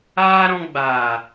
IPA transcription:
aː˦ ɾ ɔ̃˧ ɡ͡b aː˨

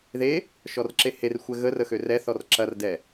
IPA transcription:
ð e | ʃ ɔ r ǁ e h e r xʷ ɛ ɣ ə r ə x ø r ɛ θ ɔ r ǁ ɐ r d ɛ

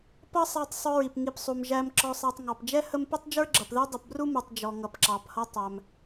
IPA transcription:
p ʌ˥ sˤ æ˨ tˤ sˤ ʊ˨ ɹ i˩ p ŋ i˨ p sˤ u˩ m ʒ æ˨ m ǁ ɔ˨ sˤ æ˨ tˤ ŋ ɑ˩ p d͡ʒ ɛ˥ h ə˦ m p ɛ˥ tˤ d͡ʒ ə˞˥ ɡ͡ǁ ʌ˩ p ð ɛ˥ dˤ ʌ˨ p b r u˥ m u˩ tˤ d͡ʒ ɔ˩ ŋ ʌ˩ p ǁ ɑ˩ p h ʌ˦ tˤ æ˩ m

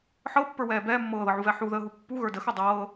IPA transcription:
ħ ɤ pː ə˞ w ɛː b ɛː mː ɤː ð ɤ ʕ u v ɛ ħ u ð əː ɦ u pː u ɣ ə˞ d ə x œ dˤ ɤː

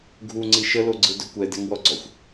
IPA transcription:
ɡʱ u ŋ͡ǀ i ʃ ə l o ɡ͡ǀ ɯ d ɵ kʷ ɛ d ɛ ŋ w ɔ ɡ͡ǀ ɔ xʷ

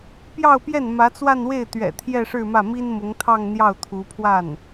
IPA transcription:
p j ɑ˥˧ ʊ̯ p j ɛ˥˩ n m ä˧˥ t͡s w a˥˧ n w e˥˩ ɪ̯ t̪ ɥ ɛ̰˨˩ t̪ʰ j ɛ˥˧ ʂ ɻ̩˥˧ m ä˥˩ m i˥ n m ʊ˧˥ ŋ t̪ʰ ɑ˥˧ ŋ n̪ j ɑ˥˩ ʊ̯ t̪ʰ u˧˥ pʰ w a˥˩ n

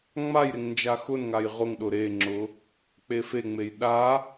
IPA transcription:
ŋ͡m a j ɾ e ŋ n d͡ʒ a x ʊ n ŋ a j ʁ ʊ ŋ ɗ ʊ ɾ e ŋ͡ǁ ʊ | k͡p e f e ŋ͡m e j ɗ a

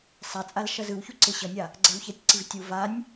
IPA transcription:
sˤ a t͡sʼ a l ʃ ʌ z ɯ w ç u ǀ e ɕ ʌ nʲ a | ɡ͡ǀ ɛ w ç ɛ tʲ ǀ i v tʲ u v a nʲ

